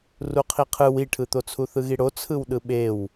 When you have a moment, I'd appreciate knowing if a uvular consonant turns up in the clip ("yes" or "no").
yes